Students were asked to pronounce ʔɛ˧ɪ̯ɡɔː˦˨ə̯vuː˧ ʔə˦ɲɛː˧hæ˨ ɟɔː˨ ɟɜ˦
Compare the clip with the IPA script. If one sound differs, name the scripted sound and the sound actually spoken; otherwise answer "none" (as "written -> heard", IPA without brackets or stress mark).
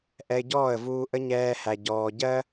ɡ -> ɟ